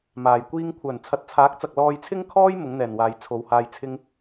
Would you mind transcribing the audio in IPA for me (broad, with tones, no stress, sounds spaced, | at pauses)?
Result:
m aː˨ j kʷ iː˥ ŋ kʷʰ œː˨˩ n t͡sʰ ɐ˨˥ t̚ t͡sʰ aː˨˥ k̚ t͡s ɐ˨ k̚ l ɔː˧ j t͡sʰ ɪ˥ ŋ kʰ ɔː˥ j m ʊ˨˥ ŋ n̪ ɛː˨˩ n w aː˨ j t͡sʰ o˨˧ w h aː˧ j t͡sʰ ɪ˥ ŋ